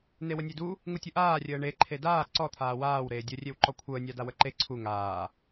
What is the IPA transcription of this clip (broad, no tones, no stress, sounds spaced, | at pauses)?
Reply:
n e w ə nʲ e d u | ŋ u tʲ u ʔ aː rʲ əː ɳ e ǃʰ e d aː ǀ ɔ t̪ʰ aː w aː w ɾ eː dʲ ə rʲ e w ǃ ɔ kʷʰ əː nʲ a d a w ə ǃ e ǀʰ u ŋ aː